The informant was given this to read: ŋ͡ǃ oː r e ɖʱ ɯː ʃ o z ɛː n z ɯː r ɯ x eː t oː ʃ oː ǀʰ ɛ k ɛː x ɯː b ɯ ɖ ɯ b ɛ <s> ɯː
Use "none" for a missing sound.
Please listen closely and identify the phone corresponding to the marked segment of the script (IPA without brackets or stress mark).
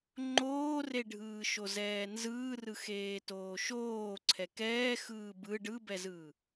z